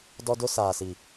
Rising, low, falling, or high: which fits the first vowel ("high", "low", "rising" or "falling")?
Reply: high